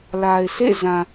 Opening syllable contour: low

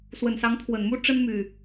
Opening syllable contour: low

